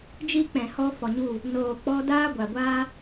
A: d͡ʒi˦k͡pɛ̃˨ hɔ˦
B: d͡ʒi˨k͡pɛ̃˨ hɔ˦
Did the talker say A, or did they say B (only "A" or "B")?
A